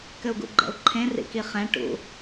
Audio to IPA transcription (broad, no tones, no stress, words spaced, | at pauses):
kɘu̯ɡṵɡ͡ǃɛ̰u̯ǃʰẽ rḭkiχɛ̃ ʈṵ